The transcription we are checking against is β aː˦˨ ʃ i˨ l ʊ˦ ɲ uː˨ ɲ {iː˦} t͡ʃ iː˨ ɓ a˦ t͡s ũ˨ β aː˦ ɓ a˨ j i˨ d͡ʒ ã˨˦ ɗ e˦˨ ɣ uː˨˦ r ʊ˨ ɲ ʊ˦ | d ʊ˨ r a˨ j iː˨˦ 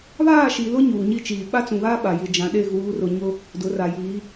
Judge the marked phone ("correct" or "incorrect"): incorrect